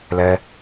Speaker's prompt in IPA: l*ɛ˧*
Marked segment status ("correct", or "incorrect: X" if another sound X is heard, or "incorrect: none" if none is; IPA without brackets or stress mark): correct